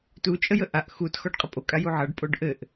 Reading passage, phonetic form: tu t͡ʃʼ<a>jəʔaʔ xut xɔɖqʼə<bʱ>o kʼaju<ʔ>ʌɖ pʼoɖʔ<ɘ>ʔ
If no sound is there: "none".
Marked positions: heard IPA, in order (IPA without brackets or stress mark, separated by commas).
ə, pʼ, ʕ, ɘ